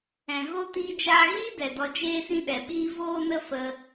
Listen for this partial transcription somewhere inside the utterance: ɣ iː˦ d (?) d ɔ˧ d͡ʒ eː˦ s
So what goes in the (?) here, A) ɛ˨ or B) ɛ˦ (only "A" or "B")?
A